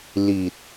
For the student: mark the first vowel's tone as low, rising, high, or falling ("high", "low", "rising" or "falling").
low